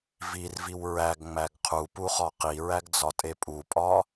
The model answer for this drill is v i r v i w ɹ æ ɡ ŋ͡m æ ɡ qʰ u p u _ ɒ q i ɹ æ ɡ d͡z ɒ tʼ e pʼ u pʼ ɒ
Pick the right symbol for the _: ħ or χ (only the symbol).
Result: χ